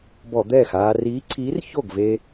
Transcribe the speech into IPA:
bɔ˧˩˧ d̪ɛː˥˩x aː˧ riː˨˥ǀʰiː˨˥r ço˥˩ɡve˧

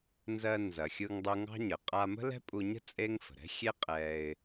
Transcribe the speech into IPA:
nzɜ˧ nzɐ˩xʲɯ˧ŋdˤu˧ ŋɑ̤˥ɲə˩ qʼa˧mə̤˥ lɛ̤˥pʼu˧ɲə̤˥ t͡sʼe˥ŋ fə̤˩ɾɛ̤˥xʲe˥ qʼɛ˧ɪ̯

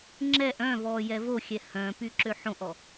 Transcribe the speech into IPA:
ŋ͡ǁɛʔ œ̃vɔ jɛvoxʲɛ hœ̃ pyǁøħõʔɔ

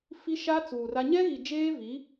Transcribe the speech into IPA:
fi˦ʃa˦t͡suː˨ra˦ ɲɛ˦ɣi˨d͡ʒeː˦vi˨˦

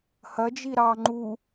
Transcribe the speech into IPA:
hɐd͡ʒi ɾɑ ŋ͡ǃu

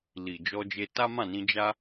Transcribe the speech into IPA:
li˨ d͡ʒɔ˧d͡ʒe˧ ta˦mã˦˨nĩ˧ d͡ʒa˦

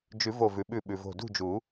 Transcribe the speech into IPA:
d͡ʒʉ˨˩˦vo˧˩vʉ˩ɓʉ˧˩ ɓʉ˩vo̤˧˩dṳ˥˨d͡ʒu˨˩˦

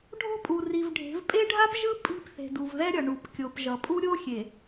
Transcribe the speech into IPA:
ɖʱo̤˦pʼu˨ri˨vɖʱe̤˨˦v pʼe˦ɖʱa˦pʒɯ˦ pʼi̤˦p θe̤˨du˨vðɛ˦ɾʲʌ˨ ɳu˨pkʲo˨pʒʌ˨ pʼu˦ɾʲo˦xʲe˨

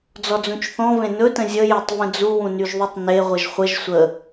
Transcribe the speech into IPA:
d͡zɔd͡zũt͡ʃθɔ̃vẽ nɵtə̃ zʲəjetˤvə̃ d͡zuwũnyʒðˤytˤ ne ʁʷəʒχʷəʒ sʷə

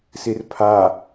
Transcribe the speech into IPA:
sirpʰa

